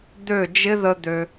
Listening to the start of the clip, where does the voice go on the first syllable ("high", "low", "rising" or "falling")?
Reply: falling